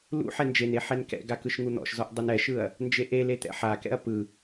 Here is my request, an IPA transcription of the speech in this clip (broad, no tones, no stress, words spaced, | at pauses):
lṵ ħɛnd͡ʒene ħɛnkɛ̰ɡa kɯʃŋun̪ɔ̰ʃzɔʔ dˤɯnɛʃɯɐ̯ | nd͡ʒeʔele t̪ɛ̰ħakɛ̰ɐ̯ pɯ